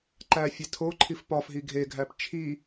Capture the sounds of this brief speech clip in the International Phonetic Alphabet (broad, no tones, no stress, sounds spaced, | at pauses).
ǃ æ fʲ e tʰ o ǃʰ i f p ɒ f ɦ i ɡʱ e ɡʱ æ p t͡ʃʰ i